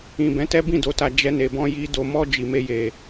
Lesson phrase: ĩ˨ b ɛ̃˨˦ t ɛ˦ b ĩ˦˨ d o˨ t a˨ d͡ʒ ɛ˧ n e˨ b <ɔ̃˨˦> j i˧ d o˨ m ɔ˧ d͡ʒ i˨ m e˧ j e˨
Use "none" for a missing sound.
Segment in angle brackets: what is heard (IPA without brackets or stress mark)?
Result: ɔ̃˧